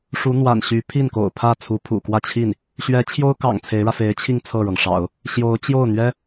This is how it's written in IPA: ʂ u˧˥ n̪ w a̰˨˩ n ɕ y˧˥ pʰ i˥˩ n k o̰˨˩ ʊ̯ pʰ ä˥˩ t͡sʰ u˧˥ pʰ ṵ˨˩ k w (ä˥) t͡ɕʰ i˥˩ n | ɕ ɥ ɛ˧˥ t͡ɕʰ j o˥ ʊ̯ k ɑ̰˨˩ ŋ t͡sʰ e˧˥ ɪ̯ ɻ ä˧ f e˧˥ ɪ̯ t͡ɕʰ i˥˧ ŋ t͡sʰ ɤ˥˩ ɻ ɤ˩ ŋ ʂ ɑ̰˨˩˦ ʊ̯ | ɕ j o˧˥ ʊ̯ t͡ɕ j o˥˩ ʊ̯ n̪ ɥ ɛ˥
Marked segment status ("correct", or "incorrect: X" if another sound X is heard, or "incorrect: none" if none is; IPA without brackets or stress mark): incorrect: ä˥˧